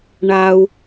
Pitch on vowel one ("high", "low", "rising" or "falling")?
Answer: high